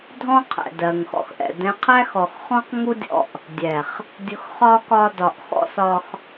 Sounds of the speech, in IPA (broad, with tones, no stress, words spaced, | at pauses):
dʱɔ̃˦qʰɛ̰˨ dɜ˨ŋxɔ̰˧x ʔɛ̰˨ dɛ̃˧qʰæ˦ xɔ˨xχɔ̃˦qŋu˦dʲɔ̰˧ʔ | dʲɛ˨χ | dʲʊ˧xχɒ˦ kɒ˧dɒ˨ʔxɔ̰˦s ɒ˧x